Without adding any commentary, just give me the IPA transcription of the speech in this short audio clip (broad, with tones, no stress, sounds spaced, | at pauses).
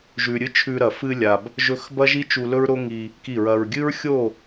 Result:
ʒ ʉ˨ ɾʲ ɨ˦ t͡ʃʰ ʉ˧ ɾ ɐ˨ f ɨ˧ lʲ a˨ b | ʒ ɵ˧ x b ɐ˦ ʒ i˦ t͡ʃ u˧ l ɵ˦ ɹ ɾ o˦ ŋ i˧ | k i˦˨ ɹ ɐ˧ ɹ ɡʲ ɨ˦ ɹ xʲ o˦˨